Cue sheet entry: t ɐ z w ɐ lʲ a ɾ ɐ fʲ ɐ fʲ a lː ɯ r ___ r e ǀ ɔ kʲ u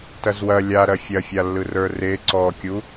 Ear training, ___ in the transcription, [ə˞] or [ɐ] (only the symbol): ə˞